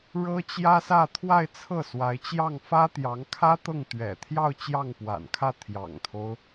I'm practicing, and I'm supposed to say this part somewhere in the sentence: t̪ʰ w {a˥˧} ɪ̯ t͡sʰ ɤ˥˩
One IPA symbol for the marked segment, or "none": a˥˧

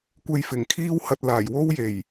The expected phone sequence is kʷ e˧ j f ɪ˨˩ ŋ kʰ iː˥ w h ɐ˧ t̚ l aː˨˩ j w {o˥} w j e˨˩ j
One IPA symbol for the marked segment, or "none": o˥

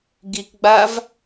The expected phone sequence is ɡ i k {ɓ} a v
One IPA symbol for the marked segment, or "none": ɡ͡b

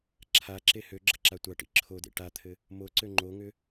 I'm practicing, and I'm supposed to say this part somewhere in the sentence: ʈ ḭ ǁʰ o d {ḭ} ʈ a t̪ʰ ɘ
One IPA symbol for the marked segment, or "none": ḛ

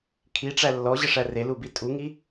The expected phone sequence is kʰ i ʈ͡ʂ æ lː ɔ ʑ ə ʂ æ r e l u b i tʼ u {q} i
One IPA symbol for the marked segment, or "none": ŋ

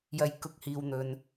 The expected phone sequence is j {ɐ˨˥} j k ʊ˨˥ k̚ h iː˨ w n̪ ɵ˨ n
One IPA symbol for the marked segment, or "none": ɐ˧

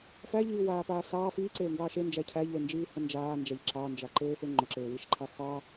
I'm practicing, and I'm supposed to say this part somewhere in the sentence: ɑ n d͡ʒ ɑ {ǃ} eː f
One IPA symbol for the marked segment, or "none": ǃ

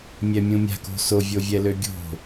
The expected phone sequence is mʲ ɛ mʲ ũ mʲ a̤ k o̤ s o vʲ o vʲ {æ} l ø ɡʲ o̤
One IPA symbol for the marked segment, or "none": ɛ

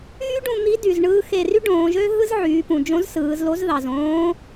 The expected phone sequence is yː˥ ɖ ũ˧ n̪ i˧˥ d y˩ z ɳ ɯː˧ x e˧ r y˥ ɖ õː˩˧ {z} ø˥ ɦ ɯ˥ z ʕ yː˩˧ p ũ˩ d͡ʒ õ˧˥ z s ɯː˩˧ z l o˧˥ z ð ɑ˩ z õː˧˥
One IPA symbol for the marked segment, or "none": ʒ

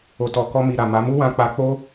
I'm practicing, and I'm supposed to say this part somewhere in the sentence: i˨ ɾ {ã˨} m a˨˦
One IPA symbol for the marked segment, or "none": a˨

